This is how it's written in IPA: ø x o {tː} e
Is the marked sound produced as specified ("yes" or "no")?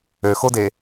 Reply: no